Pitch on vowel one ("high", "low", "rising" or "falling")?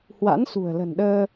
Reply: rising